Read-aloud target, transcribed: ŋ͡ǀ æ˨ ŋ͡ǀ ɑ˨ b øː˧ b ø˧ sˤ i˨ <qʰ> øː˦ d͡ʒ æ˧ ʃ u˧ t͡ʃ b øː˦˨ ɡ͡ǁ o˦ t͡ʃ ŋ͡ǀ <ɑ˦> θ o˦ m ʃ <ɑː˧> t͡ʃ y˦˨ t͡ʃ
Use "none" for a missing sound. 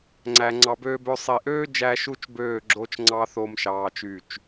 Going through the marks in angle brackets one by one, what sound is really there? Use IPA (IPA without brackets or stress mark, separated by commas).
ʔ, ɑ˦, ɑː˧